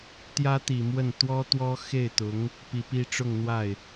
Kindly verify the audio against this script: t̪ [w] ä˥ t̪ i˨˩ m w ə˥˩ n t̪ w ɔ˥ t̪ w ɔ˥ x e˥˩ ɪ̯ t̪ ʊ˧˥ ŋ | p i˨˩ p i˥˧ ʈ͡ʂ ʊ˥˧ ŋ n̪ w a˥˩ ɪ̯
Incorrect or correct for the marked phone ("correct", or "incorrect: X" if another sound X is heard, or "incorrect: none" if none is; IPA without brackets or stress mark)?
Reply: incorrect: j